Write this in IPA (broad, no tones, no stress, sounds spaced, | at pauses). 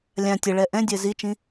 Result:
lʲ ã tʲ ə ɭ ɛ ʔ ɛ̃ dʲ ɜ z i t͡ʃ ĩ